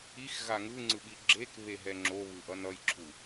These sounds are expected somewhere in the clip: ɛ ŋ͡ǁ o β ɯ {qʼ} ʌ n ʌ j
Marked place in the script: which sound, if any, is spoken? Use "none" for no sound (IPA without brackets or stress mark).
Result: ʔ